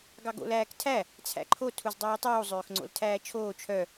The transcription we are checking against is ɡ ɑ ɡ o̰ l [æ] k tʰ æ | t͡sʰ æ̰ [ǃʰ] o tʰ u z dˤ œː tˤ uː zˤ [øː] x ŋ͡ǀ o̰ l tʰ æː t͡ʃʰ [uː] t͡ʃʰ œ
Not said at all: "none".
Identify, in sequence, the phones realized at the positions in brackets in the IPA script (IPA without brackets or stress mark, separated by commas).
æː, ǃʰ, øː, oː